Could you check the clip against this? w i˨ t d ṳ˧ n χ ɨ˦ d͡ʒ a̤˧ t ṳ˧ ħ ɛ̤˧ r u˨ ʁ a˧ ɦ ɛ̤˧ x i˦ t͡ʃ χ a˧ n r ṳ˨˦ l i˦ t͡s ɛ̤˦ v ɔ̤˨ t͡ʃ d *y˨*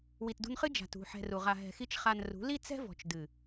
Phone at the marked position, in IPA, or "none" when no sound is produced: ɨ˨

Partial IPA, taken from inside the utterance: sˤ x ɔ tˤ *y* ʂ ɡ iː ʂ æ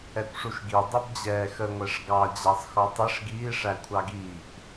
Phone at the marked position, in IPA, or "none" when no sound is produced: i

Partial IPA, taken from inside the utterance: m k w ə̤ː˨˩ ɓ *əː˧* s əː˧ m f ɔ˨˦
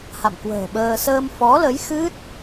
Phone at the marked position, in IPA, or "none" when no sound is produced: əː˧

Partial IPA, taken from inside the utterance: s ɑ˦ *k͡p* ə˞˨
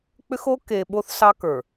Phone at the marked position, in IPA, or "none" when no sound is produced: k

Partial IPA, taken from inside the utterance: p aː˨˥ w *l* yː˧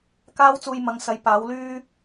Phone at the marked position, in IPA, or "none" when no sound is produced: l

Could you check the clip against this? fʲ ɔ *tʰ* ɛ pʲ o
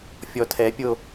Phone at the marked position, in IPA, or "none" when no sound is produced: tʰ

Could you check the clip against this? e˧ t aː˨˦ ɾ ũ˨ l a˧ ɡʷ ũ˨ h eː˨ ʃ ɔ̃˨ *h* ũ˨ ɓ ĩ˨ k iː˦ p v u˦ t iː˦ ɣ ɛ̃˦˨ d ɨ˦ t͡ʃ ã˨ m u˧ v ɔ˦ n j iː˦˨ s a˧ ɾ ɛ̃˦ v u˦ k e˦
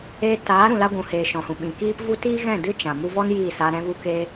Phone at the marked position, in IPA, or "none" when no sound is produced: h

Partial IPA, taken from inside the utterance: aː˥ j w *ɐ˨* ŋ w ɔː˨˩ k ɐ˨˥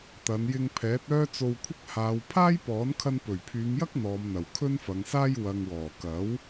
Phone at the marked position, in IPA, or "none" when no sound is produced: ɐ˨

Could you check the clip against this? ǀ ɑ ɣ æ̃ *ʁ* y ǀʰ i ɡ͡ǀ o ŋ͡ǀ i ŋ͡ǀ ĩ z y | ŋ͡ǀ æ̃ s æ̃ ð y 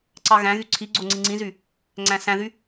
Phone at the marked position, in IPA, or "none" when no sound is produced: ɣ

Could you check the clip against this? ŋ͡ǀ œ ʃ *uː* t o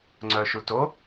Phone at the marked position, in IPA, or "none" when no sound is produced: u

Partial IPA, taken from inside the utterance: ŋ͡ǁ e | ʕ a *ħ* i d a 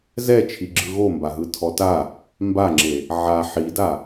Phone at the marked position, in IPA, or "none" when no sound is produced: ħ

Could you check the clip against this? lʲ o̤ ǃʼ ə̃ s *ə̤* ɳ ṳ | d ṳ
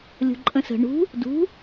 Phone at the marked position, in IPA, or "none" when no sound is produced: ə̤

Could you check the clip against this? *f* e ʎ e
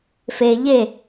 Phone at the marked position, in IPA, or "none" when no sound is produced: f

